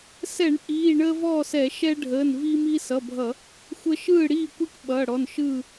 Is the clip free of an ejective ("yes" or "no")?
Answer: yes